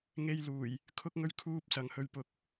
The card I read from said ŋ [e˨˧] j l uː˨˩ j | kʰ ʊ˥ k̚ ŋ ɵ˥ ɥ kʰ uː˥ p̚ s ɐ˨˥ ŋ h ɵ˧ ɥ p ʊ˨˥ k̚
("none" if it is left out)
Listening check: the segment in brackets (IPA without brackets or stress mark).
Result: e˧